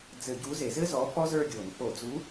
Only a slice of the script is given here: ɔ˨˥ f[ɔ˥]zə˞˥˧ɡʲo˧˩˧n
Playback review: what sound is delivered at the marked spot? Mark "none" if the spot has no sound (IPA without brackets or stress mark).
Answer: ɔ˥